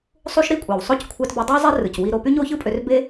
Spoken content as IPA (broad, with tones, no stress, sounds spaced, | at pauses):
sˤ u˥ ʃ ɾ i˥ kʷʼ æ˩ w sˤ o˥ c kʷʰ æ˧ t b ø˧ dˤ æ˥ zˤ e˥ r ɯ˩ c w i˧ ɾ o˧ p y˥ ɲ o˥ ç ɯ˥ pʼ ø˧ r b e˥